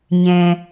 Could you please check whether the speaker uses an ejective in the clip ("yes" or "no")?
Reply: no